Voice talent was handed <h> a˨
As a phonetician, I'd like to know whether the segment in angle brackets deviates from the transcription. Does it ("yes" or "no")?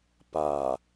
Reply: yes